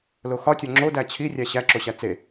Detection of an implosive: absent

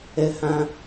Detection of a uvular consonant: absent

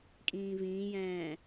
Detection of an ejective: present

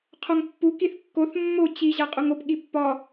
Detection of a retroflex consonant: absent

